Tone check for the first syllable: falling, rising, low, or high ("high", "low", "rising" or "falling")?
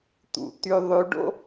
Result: low